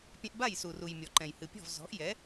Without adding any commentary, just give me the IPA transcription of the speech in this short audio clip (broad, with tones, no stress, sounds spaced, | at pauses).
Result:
pʲ ɛ̃˧ ʔ b a˥˩ j s u˩ r u˩ j mʲ ɔ˩ ǃ ɛ̃˩ j h ɨ˩ pʲ ɔ̤˥˩ v z ɔ̤˩˥ ʔ j ɛ˩˥